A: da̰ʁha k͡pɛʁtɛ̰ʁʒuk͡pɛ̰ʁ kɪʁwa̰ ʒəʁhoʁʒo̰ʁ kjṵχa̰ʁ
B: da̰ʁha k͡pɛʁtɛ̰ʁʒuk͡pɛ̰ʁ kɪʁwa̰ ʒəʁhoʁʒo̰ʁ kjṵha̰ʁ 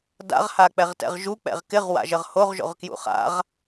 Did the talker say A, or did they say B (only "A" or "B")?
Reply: A